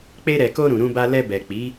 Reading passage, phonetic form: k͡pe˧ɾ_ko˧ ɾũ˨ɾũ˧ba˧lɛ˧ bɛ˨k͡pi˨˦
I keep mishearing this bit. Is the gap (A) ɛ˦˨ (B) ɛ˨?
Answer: B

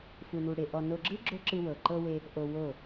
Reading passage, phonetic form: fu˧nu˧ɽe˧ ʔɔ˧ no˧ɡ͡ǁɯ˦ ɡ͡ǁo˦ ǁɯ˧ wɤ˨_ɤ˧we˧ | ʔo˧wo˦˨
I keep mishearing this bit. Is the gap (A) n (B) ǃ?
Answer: B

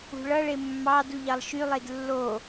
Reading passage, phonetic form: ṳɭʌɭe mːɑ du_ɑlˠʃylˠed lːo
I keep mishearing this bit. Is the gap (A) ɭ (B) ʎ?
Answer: B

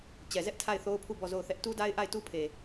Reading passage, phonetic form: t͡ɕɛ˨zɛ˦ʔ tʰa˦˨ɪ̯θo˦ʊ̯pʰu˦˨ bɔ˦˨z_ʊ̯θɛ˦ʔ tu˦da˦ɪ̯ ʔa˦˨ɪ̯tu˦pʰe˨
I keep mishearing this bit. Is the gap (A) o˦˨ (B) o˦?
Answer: A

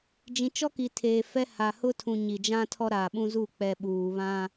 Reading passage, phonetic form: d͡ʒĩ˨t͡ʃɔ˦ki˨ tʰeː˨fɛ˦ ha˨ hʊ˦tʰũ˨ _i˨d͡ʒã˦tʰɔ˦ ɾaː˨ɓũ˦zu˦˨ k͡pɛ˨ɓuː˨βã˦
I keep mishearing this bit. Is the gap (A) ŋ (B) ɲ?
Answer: B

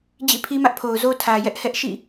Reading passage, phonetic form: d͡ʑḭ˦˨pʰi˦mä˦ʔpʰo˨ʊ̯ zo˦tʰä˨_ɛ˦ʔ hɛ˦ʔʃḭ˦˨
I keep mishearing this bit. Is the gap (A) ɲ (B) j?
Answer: B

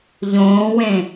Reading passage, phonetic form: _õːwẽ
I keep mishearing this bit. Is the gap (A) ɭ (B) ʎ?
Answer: B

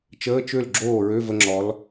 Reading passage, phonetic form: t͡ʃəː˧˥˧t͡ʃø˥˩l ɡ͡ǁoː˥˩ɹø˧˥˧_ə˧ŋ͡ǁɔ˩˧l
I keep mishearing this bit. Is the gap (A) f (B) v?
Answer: B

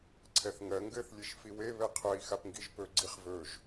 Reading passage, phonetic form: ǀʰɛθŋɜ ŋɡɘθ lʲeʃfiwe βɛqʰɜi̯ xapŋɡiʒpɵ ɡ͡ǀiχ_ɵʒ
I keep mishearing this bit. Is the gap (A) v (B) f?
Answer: A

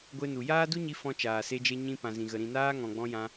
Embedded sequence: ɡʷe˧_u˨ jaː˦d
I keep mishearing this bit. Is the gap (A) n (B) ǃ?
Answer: A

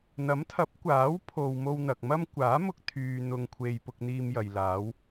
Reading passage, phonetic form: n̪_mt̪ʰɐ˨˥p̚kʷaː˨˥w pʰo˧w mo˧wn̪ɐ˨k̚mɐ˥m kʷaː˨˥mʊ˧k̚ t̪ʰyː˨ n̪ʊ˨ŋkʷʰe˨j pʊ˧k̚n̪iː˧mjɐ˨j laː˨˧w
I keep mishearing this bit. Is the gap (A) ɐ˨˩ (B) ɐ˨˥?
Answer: B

